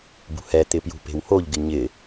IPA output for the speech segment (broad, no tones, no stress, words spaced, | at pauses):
bṳhɛ t̪ɪpjṳpe̤whoʎ ɡɪɲɪ